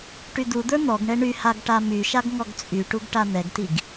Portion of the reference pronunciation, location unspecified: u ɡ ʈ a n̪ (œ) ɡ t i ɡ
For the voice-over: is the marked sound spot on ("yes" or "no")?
no